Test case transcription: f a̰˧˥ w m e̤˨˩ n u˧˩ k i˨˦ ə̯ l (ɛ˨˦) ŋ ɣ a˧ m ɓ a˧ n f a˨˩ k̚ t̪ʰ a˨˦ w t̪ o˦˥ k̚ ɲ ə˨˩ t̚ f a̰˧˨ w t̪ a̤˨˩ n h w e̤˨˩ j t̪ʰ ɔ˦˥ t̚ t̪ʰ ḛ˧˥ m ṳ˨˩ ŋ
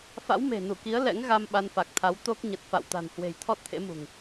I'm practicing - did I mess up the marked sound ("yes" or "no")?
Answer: yes